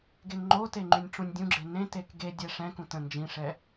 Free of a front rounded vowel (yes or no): no